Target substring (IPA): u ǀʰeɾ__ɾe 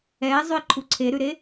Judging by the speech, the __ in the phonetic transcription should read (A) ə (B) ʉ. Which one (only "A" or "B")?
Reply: B